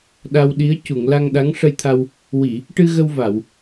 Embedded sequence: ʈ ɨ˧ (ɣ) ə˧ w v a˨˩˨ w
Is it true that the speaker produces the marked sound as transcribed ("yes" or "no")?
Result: yes